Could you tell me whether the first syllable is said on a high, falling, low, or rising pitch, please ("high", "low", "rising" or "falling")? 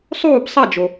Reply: falling